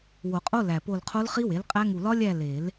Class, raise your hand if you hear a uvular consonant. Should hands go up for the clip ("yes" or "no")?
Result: yes